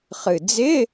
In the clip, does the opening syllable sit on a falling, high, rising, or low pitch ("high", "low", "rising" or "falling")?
low